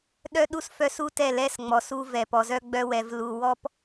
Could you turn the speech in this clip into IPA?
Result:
ɗ œ˦ ɗ u˦ s f œ˦ s u˦ t ɛ˦˨ l ɛ˦ s ŋ͡m ɔ˨ s u˦ v ɛ˨ p ɔ˨ z œ˦ ɡ͡b œ˦ w ɛ˨ v l u˨ w ɔ˦ p

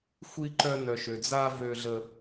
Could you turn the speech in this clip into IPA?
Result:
xʷ i˦ ǃ œ˦ n œ˧ ʃ ø˧ d͡z a˦ v ø˦ ɮ ə˦

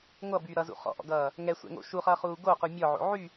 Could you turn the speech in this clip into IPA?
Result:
ŋʷ ʌ b yː ɾ ʌ z ṵ χ ɔ̰ ʔ ɔ̰ ɡ ʌː | ŋ ɛ sʷ ɛ̰ ŋ o̰ ʃ u χ ʌː χ uː ɡ o q u mʲ ɔ ʕ o̰ ʕ y

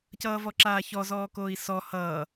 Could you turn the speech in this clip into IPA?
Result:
c ʌː v ɔ ǁ aː ç ɔ z ɔː k oː i̯ s ɔ h ʌː

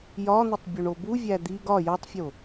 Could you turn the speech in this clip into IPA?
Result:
j ɒ n̪ u tˤ bʲ u ɳ o b u vʲ æ d̪ i ɡ ɒ j ɒ tˤ fʲ o

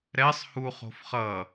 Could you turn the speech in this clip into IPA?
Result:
ɾ ɛ sˤ h u χ o̤ f χ ʌ

